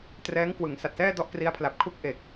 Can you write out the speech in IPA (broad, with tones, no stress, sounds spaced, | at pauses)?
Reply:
t r ɛː˦˥ ŋ k w ɯ˩˦ ŋ s a˨˩ t̚ s ɛː˥˩ d ɔ˥˩ ʔ k r i˦˥ a̯ pʰ l a˨˩ p̚ kʰ u˥˩ k̚ ʔ e˨˩ k̚